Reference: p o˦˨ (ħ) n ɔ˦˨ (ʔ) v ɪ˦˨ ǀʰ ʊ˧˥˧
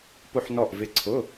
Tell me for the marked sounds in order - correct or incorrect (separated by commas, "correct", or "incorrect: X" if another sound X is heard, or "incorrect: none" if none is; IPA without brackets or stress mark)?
correct, correct